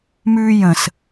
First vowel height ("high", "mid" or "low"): high